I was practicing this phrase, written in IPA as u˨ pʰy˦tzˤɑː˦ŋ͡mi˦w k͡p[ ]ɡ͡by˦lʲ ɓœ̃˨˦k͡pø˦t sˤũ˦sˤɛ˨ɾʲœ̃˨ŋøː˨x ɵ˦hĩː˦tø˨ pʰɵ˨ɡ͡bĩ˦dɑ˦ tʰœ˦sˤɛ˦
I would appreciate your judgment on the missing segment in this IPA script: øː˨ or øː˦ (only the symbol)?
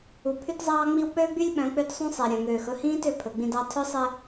øː˦